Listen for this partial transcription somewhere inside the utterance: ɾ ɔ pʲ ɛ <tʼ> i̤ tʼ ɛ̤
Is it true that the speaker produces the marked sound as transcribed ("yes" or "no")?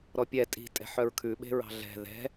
yes